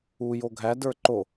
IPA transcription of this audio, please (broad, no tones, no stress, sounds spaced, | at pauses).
u j o ɡʱ æ d ə˞ ǃ o